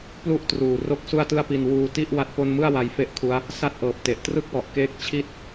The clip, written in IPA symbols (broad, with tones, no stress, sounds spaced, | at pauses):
p l u˥˩ ʔ t r uː˨˩ r o˥˩ k̚ s u˥˩ a̯ t ɯ˥˩ a̯ p i˧ n w uː˧ t i˥˩ ʔ w a˥˩ t̚ p o˥˩ n m ɯ˥˩ a̯ w a˧ j f e˦˥ ʔ kʰ u˦˥ a̯ | s a˥˩ t̚ ʔ ɤː˨˩ p̚ t e˨˩ ʔ t r ɯ˥˩ k̚ w ɔ˨˩ ʔ k eː˥˩ k̚ t͡ɕʰ i˥˩ t̚